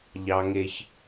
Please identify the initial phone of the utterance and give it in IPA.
ʎ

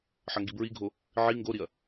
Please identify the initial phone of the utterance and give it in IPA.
ħ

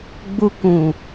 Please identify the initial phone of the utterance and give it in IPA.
ɡ͡b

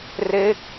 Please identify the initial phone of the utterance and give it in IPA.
r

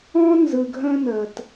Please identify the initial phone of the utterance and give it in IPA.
ɔ̃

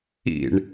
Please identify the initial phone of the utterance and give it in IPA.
ḭ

